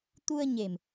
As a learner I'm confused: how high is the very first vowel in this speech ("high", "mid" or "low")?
high